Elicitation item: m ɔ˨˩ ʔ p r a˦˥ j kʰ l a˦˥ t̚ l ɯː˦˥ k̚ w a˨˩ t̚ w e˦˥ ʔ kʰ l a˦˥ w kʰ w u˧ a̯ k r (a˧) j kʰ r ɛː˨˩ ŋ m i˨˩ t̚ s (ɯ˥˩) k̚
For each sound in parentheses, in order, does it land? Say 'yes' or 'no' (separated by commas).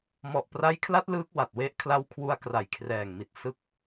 no, no